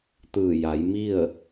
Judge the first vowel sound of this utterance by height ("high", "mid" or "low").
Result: high